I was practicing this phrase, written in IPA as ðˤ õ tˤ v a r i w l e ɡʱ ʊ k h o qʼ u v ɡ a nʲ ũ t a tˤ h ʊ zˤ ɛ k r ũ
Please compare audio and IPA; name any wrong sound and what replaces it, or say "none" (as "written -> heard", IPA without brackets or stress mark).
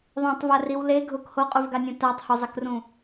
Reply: none